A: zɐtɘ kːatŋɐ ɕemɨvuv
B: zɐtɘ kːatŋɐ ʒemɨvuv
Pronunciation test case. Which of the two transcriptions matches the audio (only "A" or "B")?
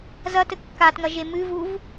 B